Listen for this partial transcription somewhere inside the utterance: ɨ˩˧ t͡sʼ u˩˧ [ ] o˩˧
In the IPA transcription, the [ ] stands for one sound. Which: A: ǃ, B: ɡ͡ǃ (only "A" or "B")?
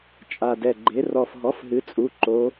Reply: A